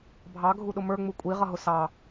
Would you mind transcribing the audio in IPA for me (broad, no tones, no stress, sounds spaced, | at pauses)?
bʱ ɑ ɡʱ u ɗ ʊ m ə˞ ŋ͡m u kʷʼ i ʁ ʌ ɦ ʊ s ɑ